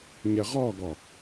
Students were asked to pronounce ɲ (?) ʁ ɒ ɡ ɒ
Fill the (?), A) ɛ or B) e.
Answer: A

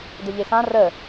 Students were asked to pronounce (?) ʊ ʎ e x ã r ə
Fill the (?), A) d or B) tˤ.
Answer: A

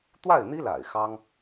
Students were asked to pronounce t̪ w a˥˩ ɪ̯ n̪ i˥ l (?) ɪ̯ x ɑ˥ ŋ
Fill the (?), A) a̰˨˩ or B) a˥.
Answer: A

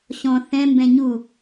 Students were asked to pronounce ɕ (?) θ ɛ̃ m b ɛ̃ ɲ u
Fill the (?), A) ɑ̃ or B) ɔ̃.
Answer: B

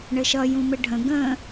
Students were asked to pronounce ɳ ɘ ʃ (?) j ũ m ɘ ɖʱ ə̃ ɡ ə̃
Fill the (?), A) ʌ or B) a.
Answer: A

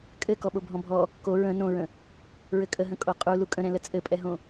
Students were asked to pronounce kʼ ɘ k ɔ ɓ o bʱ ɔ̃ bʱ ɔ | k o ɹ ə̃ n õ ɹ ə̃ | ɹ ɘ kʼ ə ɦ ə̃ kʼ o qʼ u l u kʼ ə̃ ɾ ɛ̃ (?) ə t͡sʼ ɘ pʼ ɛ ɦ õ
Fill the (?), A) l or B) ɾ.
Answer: A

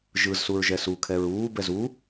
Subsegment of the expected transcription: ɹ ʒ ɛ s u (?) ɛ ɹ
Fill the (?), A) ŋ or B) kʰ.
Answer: B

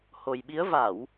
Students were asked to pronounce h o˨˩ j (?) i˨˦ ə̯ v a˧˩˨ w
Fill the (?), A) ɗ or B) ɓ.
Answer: B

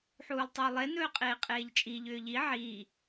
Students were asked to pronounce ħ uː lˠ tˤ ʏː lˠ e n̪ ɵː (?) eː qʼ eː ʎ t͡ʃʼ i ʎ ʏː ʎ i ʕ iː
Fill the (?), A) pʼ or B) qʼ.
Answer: B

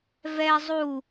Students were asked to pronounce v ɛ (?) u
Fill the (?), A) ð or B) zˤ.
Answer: B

